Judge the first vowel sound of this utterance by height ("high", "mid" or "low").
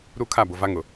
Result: high